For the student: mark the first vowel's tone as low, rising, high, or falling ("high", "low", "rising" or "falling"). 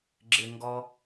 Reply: low